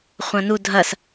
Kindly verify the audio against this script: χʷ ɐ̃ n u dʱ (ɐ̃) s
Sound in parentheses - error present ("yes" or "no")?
yes